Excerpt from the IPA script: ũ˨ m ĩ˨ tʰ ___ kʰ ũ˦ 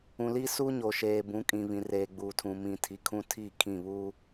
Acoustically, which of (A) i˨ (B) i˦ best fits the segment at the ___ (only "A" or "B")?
A